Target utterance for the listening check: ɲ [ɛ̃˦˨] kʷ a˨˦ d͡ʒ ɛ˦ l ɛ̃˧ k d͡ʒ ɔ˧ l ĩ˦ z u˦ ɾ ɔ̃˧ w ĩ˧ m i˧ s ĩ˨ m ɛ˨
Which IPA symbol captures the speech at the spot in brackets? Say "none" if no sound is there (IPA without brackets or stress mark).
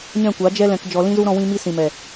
ɛ̃˦˨